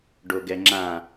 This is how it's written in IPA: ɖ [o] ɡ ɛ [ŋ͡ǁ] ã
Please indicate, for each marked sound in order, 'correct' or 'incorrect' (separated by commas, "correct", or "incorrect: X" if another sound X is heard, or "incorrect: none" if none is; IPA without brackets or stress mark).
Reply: correct, correct